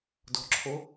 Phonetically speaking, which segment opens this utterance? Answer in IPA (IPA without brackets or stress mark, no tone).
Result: d